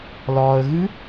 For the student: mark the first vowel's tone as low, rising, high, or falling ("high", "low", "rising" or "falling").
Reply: low